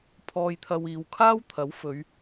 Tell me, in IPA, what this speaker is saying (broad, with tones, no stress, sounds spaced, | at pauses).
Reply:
pʰ ɔː˧ j t̪ʰ ɐ˧ w iː˨˧ w kʰ aː˥ w t̪ʰ ɐ˨˥ w f ɵ˨˧ ɥ